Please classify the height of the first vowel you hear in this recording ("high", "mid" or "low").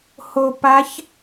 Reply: mid